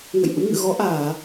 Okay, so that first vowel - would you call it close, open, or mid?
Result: mid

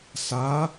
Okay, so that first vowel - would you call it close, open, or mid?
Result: open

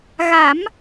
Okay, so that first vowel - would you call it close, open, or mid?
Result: open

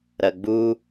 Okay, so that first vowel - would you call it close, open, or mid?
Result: open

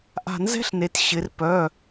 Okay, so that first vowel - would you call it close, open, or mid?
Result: open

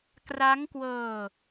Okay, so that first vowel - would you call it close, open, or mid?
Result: open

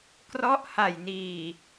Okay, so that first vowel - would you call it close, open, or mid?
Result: mid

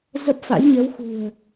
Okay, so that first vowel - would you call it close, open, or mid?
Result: mid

